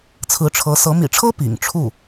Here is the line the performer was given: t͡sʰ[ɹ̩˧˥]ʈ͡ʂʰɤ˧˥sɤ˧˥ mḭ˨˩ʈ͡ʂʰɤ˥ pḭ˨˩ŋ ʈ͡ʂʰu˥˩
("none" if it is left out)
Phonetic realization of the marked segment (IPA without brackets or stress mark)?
ɹ̩˧˥